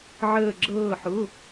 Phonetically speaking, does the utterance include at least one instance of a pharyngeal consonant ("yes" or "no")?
yes